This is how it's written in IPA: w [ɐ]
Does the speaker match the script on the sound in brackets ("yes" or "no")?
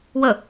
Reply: no